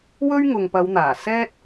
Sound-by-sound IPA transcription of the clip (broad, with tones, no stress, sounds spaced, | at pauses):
w ɵ˥ ɥ ŋ ʊ˨ ŋ p ɐ˨˧ w n̪ aː˨˩ s ɛː˥ t̚